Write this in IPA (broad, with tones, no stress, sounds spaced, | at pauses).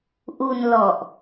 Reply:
ʔ u˧ n l ɔ˨˩ ʔ